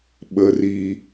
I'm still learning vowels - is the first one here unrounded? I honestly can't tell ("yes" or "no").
yes